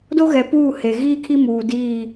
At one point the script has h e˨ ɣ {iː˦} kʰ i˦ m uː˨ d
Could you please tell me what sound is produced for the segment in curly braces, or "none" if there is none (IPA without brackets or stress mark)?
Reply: iː˦